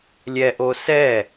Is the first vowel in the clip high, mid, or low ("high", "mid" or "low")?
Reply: mid